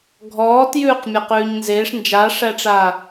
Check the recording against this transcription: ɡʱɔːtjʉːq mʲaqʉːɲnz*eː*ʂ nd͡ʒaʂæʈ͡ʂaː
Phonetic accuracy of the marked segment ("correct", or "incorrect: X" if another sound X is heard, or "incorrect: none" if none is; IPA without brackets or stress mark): correct